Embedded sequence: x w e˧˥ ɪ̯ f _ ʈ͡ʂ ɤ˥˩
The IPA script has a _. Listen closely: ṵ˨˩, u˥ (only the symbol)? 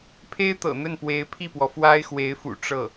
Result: ṵ˨˩